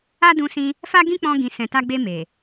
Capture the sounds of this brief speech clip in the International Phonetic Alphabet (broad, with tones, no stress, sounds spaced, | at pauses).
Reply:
a˦ d ũ˧ s ĩ˧ | f a˦ ɡ ĩ˦ k͡p ɔ̃˧ ɡ ĩ˨ s ɛ̃˨ t a˧ ɡ͡b e˧ m e˨